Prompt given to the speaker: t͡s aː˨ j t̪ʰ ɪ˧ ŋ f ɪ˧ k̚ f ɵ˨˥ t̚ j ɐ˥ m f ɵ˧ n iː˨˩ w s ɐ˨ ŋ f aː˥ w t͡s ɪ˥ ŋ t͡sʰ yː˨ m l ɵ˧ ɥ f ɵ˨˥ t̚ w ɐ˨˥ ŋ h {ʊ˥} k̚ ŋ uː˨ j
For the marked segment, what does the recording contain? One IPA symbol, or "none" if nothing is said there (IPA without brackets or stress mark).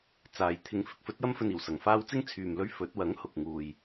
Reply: ʊ˨